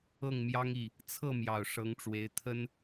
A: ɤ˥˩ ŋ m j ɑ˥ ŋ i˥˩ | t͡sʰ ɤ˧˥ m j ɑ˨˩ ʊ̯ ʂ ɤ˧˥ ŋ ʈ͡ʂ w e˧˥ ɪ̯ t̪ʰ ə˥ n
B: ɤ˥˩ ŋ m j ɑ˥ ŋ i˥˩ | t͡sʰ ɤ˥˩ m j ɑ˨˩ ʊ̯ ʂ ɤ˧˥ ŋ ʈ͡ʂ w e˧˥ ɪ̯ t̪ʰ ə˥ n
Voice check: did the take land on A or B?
B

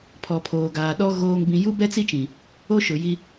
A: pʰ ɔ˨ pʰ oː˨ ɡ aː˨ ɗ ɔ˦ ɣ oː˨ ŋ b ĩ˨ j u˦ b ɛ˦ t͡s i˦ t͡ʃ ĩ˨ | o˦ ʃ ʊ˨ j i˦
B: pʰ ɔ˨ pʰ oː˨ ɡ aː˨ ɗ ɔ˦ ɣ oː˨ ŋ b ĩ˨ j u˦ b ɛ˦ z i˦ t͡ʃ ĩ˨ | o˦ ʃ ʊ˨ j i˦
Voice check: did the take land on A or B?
A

